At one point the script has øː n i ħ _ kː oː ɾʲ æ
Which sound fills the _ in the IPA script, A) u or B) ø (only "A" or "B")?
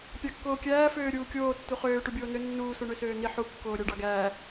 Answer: A